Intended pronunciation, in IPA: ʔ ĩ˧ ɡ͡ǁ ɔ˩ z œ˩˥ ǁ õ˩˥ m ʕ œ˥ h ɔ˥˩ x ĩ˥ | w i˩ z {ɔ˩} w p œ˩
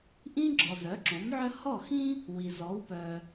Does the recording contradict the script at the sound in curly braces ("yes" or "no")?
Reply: yes